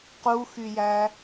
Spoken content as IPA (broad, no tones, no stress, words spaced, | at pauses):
quxyjæ